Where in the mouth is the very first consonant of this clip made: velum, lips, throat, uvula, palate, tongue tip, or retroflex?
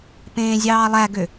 lips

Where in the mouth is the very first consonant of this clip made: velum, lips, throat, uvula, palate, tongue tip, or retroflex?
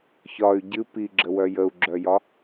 palate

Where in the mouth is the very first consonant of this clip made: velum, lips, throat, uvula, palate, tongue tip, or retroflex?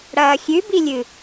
retroflex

